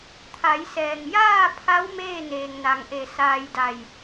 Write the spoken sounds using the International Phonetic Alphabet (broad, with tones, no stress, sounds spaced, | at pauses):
t̪ʰ a˩˧ j s ɛː˩ ŋ j aː˥˨ pʰ a˧˥ w m eː˥˨ n eː˩ ŋ n a˩ ŋ ʔ e˧˩ s aː˧ j d a˧˩ j